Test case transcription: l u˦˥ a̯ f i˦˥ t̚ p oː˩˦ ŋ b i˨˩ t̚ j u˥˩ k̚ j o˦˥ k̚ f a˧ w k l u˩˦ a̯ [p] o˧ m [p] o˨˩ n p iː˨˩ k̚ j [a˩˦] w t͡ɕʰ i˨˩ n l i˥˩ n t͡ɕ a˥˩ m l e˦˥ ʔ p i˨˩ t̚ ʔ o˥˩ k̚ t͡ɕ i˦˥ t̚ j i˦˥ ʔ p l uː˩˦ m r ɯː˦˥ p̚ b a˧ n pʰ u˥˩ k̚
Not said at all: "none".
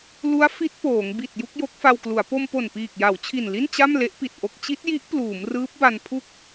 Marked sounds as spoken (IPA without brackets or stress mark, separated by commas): p, p, a˩˦